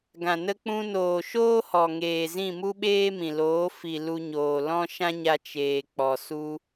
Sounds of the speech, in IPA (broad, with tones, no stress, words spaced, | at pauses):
ɡã˨ nə˧k͡pũ˧noː˨ʃoː˦ hɔ˨ŋeː˨zĩ˦˨ mu˦ɓeː˦mĩ˨loː˨˦ fi˨ lu˧ɲoː˨lɔ̃˦ ʃã˦ɲa˧ t͡ʃeː˨k͡pɔ˨ su˧